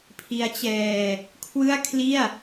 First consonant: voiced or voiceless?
voiceless